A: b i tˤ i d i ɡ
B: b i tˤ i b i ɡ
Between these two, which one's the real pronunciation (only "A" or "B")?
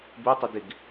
A